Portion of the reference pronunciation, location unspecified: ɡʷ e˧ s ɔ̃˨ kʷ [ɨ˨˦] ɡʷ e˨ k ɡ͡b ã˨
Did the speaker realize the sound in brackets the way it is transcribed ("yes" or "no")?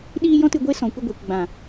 no